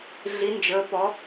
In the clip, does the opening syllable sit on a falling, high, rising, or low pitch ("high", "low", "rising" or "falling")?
rising